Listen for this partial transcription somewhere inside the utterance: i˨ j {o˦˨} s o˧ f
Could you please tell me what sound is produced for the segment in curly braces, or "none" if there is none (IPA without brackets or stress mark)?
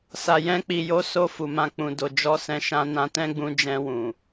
o˧